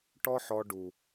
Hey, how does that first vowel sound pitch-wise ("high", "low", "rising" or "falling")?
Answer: high